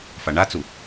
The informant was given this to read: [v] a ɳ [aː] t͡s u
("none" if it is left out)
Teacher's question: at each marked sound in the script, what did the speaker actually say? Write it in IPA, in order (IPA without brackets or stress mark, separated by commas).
f, a